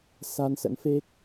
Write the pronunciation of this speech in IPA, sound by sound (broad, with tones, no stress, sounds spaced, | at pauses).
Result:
s a˧ n s ə̰˧˥ n f e˦˥ k̚